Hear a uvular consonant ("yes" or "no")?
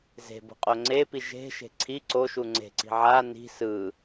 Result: yes